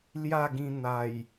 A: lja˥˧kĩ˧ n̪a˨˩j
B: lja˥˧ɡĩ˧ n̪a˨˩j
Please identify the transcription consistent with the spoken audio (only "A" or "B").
B